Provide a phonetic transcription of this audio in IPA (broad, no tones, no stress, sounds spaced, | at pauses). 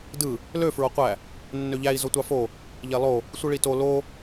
d ɯ | l ø f ɹ o qʷ æ | nː ø ʎ æ i̯ z o tʷ ɑ f o | ʎ e lˠ o | sʷ ɯ ɭ i t o l o